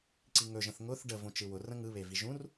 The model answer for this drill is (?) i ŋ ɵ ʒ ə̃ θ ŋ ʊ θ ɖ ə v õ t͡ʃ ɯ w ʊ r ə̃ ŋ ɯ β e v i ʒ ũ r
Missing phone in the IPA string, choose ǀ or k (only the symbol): ǀ